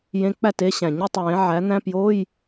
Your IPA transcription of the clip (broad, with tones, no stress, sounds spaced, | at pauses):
j ẽ˧˥ k͡p æ˥˩ t e˧˥ ɕ æ̃˩ ɲ u˥˩ tˤ w ẽ˩˥ ʕ æ˩˥ n̪ æ̃˧˥˧ p j o˧˥˧ j